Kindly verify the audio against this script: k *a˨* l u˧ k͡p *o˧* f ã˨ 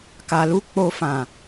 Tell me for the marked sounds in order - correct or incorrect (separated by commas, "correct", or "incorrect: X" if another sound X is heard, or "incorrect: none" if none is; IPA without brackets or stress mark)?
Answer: correct, correct